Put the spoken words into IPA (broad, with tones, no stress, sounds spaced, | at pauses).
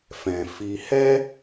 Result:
f ɛ̃˨ f i˧ h ɛ˦